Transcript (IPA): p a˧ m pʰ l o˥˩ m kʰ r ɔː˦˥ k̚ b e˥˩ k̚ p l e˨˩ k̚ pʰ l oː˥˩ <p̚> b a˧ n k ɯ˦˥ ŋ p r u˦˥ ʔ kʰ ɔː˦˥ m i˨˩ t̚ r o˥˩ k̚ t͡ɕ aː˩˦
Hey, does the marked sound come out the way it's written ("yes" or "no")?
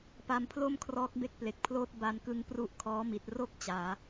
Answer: no